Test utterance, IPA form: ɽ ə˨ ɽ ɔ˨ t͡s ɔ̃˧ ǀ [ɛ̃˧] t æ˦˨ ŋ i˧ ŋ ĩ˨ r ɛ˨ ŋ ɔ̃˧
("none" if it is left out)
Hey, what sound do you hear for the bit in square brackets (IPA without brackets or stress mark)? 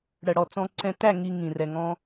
ɛ̃˧